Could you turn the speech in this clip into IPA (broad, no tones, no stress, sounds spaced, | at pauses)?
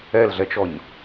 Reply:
ɛ l ɮ ɛ t͡ʃ ɔ ɲ